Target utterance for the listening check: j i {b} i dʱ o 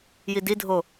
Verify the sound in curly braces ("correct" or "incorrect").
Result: incorrect